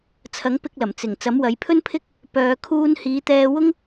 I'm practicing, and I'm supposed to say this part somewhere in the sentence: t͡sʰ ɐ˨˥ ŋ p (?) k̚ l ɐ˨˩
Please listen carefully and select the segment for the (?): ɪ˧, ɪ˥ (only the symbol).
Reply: ɪ˧